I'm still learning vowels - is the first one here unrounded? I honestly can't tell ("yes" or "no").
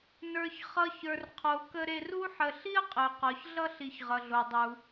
yes